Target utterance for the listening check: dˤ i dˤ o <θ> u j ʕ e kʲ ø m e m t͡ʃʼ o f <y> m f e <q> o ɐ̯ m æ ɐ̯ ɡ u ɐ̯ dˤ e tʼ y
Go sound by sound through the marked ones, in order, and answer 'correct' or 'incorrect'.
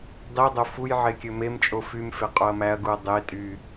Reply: incorrect, correct, incorrect

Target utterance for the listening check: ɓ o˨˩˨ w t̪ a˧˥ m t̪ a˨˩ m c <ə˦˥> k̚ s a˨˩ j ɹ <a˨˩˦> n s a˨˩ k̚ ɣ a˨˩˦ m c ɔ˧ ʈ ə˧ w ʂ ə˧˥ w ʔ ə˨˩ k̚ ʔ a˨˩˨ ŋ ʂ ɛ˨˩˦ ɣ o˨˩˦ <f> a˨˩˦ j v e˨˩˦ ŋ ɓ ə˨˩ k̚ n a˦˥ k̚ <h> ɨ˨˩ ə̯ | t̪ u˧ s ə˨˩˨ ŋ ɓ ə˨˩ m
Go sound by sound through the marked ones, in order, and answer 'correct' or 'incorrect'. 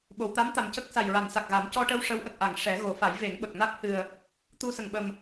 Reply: correct, incorrect, correct, correct

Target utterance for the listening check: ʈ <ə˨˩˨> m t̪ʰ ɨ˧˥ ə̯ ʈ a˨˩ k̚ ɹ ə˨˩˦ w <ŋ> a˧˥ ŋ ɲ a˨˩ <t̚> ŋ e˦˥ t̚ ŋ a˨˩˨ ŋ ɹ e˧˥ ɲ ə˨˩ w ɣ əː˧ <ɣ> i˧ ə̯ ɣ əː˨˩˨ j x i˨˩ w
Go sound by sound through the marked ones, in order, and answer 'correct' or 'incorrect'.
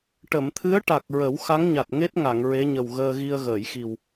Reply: correct, incorrect, correct, correct

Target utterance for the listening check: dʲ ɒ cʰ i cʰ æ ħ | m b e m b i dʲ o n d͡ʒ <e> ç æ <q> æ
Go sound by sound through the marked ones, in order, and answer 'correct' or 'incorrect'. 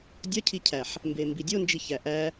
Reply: incorrect, incorrect

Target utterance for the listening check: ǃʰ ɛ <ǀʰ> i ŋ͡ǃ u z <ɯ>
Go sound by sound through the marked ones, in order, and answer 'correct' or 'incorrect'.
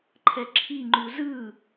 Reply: incorrect, correct

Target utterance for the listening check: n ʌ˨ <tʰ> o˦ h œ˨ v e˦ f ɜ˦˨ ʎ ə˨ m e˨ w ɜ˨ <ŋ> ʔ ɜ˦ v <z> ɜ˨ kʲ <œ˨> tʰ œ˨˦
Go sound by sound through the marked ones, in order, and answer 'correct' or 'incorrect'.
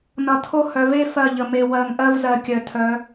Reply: correct, correct, correct, correct

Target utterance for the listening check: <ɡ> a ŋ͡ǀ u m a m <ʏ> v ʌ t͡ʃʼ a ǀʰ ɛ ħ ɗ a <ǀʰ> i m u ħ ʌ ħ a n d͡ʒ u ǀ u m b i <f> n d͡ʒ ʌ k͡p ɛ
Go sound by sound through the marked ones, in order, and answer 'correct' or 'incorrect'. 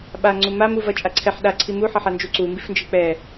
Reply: incorrect, incorrect, correct, correct

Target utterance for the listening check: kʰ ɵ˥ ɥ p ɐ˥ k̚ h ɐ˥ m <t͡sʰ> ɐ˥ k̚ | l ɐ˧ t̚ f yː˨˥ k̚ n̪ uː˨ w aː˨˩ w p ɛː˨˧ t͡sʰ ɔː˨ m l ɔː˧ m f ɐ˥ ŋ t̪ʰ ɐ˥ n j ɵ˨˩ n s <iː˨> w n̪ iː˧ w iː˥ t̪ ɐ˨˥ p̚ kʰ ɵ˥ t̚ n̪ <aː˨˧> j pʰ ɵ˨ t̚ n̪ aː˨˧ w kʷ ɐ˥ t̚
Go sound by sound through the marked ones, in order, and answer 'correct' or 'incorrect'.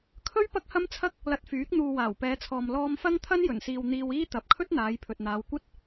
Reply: correct, correct, correct

